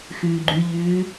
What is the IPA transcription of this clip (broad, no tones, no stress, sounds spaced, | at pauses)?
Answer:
x ʉː ɡ͡ǃ ʉ ʎ ʉː